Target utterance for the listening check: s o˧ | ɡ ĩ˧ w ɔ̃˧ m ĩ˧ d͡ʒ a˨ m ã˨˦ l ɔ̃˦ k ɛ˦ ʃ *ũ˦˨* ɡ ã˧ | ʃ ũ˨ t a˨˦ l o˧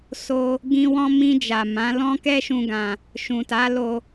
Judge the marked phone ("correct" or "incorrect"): incorrect